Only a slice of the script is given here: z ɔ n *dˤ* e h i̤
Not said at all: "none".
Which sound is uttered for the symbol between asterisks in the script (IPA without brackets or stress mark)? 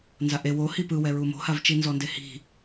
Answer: d